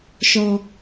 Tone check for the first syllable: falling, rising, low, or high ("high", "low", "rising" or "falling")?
high